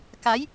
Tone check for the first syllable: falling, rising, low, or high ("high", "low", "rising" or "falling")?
rising